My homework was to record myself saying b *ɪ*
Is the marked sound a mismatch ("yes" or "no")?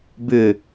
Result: yes